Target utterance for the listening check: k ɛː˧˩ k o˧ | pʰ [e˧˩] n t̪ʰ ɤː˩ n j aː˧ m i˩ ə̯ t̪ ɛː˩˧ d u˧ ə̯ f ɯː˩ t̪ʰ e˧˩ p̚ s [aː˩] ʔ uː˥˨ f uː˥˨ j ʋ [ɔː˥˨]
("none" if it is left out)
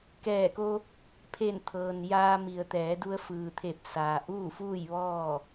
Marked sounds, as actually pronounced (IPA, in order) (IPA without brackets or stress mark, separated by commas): e˧˩, aː˩, ɔː˥˨